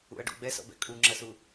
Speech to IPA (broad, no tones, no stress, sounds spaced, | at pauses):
ṵ ɐ̯ ɖ ṵ ɡ͡b ɛ s ɔ̰ b ɛ̰ kʼ u ŋ͡ǁ ɐ s u